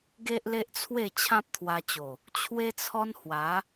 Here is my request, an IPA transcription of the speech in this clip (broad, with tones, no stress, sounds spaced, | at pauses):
ɡ e˦ ʔ l e˦ ʔ t͡sʰ w e˥˧ t͡ɕʰ ã˦ p̚ t̪ʰ w a˧ t͡ɕ o˨˩ | t͡ɕʰ w e˦ t͡sʰ ɔ˦ n h w a˨˦